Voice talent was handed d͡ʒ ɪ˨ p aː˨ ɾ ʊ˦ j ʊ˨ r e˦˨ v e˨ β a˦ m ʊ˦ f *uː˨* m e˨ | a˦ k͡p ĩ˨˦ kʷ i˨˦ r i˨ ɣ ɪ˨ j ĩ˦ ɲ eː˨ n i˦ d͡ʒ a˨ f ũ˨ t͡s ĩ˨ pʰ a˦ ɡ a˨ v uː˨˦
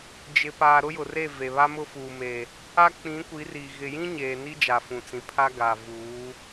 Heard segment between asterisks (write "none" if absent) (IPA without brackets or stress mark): uː˨